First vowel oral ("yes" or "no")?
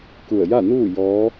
yes